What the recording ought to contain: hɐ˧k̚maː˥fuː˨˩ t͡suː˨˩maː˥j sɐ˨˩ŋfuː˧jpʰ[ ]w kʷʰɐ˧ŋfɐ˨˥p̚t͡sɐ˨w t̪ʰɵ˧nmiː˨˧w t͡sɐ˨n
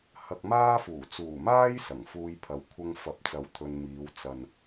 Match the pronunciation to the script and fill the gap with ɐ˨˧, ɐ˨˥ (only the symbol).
ɐ˨˧